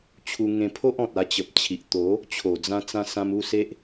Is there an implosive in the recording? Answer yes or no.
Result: no